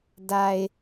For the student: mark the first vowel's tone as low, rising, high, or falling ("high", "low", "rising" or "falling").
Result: low